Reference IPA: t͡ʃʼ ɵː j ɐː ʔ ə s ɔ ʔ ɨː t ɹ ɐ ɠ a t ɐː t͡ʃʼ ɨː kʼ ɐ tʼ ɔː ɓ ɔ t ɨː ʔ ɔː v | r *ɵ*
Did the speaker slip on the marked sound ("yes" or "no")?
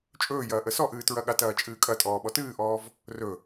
no